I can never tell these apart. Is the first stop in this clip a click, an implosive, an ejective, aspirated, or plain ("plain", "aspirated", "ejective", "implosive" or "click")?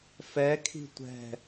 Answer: aspirated